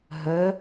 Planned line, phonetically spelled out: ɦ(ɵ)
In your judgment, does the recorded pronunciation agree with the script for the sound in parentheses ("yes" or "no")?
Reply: no